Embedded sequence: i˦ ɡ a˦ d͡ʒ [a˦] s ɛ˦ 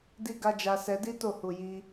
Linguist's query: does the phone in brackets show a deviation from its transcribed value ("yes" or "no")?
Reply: no